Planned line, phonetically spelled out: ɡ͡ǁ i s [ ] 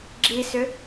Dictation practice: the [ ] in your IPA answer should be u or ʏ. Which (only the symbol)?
ʏ